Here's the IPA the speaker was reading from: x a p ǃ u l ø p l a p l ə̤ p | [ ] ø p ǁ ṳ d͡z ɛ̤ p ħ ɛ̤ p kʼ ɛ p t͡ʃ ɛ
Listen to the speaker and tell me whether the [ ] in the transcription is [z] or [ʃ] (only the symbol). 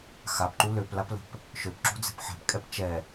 ʃ